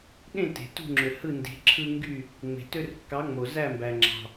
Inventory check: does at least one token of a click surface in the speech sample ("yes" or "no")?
yes